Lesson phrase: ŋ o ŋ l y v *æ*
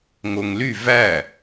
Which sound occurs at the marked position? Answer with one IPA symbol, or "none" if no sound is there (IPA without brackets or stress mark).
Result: æ